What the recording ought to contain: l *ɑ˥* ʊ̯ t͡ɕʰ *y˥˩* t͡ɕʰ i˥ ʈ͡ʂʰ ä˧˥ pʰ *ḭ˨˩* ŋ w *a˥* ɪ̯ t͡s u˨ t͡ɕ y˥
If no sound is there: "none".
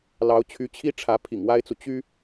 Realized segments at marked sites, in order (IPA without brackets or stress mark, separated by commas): ɑ˧˥, y˧˥, ḭ˨˩, a˥